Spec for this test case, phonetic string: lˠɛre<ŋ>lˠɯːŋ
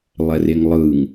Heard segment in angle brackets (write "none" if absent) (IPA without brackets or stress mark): ŋ